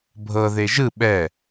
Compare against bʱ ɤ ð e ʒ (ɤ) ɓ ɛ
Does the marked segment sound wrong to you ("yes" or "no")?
yes